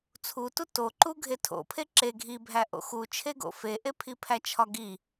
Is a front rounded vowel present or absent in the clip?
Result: absent